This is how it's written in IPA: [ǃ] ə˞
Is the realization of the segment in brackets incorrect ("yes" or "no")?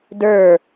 yes